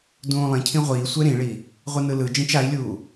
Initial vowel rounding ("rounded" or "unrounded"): rounded